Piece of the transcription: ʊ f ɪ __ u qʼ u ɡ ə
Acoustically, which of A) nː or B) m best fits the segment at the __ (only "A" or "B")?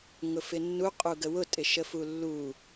A